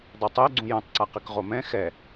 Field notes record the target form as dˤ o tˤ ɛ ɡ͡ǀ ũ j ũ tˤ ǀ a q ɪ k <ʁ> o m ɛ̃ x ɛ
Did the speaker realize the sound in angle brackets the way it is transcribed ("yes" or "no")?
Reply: yes